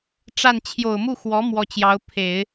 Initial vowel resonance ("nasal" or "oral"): oral